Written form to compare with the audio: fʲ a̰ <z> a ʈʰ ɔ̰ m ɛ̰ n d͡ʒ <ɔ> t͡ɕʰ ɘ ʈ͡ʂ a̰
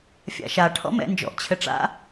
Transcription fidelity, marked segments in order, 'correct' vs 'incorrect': incorrect: ʃ, incorrect: ɔ̰

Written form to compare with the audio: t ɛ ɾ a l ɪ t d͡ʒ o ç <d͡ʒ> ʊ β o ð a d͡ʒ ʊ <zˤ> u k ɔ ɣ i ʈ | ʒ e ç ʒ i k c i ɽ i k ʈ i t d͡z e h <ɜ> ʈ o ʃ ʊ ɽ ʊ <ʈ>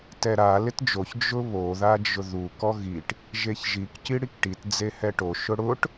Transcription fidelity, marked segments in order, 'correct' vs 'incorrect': correct, incorrect: ð, incorrect: ɛ, correct

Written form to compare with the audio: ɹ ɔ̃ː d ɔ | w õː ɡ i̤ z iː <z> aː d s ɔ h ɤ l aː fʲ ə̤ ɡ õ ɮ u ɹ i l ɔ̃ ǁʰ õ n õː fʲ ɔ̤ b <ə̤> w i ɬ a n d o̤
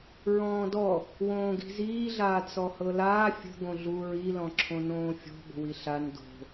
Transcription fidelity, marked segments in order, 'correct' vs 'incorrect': incorrect: ɮ, correct

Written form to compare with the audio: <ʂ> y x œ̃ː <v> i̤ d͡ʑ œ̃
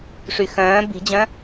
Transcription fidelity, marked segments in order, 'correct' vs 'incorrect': correct, incorrect: b

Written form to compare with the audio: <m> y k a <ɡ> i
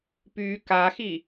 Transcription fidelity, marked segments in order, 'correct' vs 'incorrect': incorrect: p, incorrect: x

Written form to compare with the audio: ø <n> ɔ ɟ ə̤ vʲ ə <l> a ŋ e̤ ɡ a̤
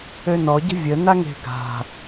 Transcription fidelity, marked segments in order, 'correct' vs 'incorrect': correct, incorrect: n

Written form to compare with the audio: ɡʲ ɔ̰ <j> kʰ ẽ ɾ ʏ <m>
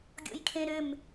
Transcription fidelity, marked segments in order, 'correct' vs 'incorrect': correct, correct

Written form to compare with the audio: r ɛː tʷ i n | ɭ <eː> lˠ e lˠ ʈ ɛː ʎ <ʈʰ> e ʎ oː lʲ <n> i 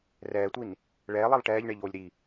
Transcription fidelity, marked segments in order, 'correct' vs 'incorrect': incorrect: ɛː, incorrect: ɳ, incorrect: ɾ

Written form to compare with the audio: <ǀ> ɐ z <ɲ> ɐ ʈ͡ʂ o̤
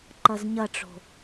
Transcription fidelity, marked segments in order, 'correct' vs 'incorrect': incorrect: ǃ, correct

